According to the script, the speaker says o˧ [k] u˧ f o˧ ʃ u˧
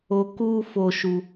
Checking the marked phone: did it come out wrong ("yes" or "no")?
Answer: no